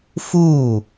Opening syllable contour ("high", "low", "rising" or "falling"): falling